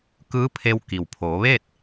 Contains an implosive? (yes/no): no